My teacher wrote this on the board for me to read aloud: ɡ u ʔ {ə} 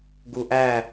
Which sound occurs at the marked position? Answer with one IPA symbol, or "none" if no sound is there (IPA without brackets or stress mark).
æ